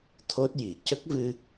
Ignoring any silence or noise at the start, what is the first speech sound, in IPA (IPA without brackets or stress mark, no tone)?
t̪ʰ